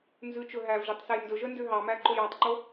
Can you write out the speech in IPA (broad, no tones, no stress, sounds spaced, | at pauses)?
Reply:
n z ʉ t͡ʃ ɵ ɦ æ v ʒ i tˤ s ɛ j n d ɵ ʒ œ n d ø ɦ ɑ m æ ǃ o j ɑ tˤ ǃ o